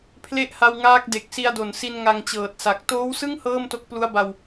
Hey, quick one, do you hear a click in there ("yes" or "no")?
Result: no